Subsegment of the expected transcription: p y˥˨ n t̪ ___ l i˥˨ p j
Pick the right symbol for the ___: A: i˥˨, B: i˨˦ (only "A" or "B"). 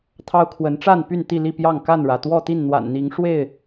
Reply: A